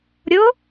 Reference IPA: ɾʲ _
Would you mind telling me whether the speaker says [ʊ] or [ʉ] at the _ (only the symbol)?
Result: ʊ